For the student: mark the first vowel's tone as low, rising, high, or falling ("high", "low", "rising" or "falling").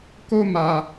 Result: high